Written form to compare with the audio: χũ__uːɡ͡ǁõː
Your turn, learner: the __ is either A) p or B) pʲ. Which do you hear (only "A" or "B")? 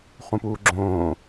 A